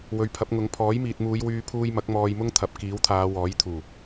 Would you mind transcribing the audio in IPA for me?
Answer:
w ɵ˨ ɥ pʰ ɐ˨˥ p̚ ŋ ʊ˨˥ ŋ pʰ ɔː˨˥ j m iː˨ t̚ m uː˨˧ j w yː˧ pʰ uː˧ j m ɐ˨˥ k̚ m ɔː˧ j m ʊ˥ ŋ t̪ʰ ɐ˨˥ p̚ k iː˨˥ w t̪ʰ aː˨˧ w ɔː˨˥ j t̪ʰ uː˨˩

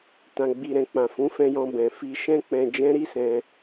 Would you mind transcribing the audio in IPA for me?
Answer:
t ã˨ ɡ͡b i˨ ɾ ɛ̃˨ k͡p ã˨ f ũ˨˦ f ɛ̃˧ j ɔ̃˧ b ɛ̃˨ f i˧ ʃ ɛ̃˦ k͡p ɛ̃˧ d͡ʒ ɛ̃˦ ɾ i˦ s ɛ̃˧

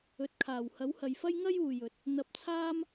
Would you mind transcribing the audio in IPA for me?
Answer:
ɵ˨ t̚ kʰ aː˨˩ w h ɐ˨˥ w h ɐ˨ j f ɐ˥ j ŋ ɐ˥ j uː˨ j ɵ˨˥ t̚ | n̪ ɐ˧ p̚ t͡sʰ aː˥ m

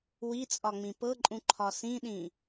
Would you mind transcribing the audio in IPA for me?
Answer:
w i t͡sʼ ɒ ŋ͡m ĩ p ɤ ǃʼ ũ ǃʰ ɒ s ĩ ɗ ĩ

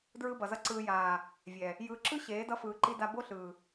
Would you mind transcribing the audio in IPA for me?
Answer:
d ɹ ɯ˦ b ʌ˨ z ʌ˦ ǀ ɯː˨ j aː˨ | vʲ ɛ˨ | j ɯː˨ ǁ ɯ˦ ɕ eː˨˦ d ʌ˦ f ɯː˨ ǃ i˦ d a˦ b o˦ ɬ ɯː˨

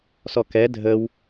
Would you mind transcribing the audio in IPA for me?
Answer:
s ɔ k ɛ dʱ ə w

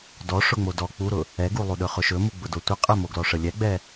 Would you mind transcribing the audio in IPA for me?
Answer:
d ɔ ʂ ʊ ŋ͡m o d ɔ k͡p u ɾ ʊ | ɛ ɡ u lˠ u ɗ ɵ χ ʊ ʃ ɵ m u ɡ͡b ʊ d o tʷ ə qʼ ə m o ɡ l ɔ ʂ ə lʲ ɛ ɡ͡b ɛ

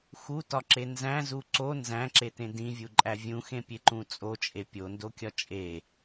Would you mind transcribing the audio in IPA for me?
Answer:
x u t ɒ ǁ e n z æ̃ z u ǀ o n z æ̃ ǁ e t ẽ d ĩ vʲ u ǃʼ æ vʲ ũ x ẽ pʲ e ǃ ũ t͡sʼ o t͡ʃʼ e pʲ o n d o kʲ ɒ t͡ʃʼ e

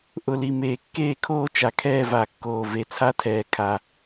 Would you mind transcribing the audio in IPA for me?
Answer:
ʔ ʊ˨˩ l i˨˩ m eː˨˩ kː eː˥˧ kʰ oː˥˧ t͡ʃ a˨˩ kʰ ɛː˥˧ v a˨˩ kː oː˨˩ v e˨˩ t͡sʰ a˥˧ tʰ ɛː˨˩ kʰ a˨˩

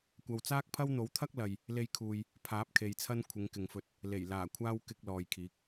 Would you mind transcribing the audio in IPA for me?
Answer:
kʷ ɐ˨ w t͡s aː˥ k̚ pʰ ɐ˥ w n̪ o˨˥ w t̪ʰ ɐ˥ k̚ l ɐ˨ j | l e˧ j kʰ uː˨ j | pʰ aː˨˥ p̚ kʰ e˨ j t͡sʰ ɐ˥ n kʷʰ ɪ˨˧ ŋ k ɪ˨ ŋ f ɵ˧ t̚ | l e˨˩ j l aː˨˩ kʷʰ aː˥ w k ɪ˧ k̚ l ɔː˨ j kʰ iː˨˥ k̚

